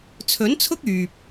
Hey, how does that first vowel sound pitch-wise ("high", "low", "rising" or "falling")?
rising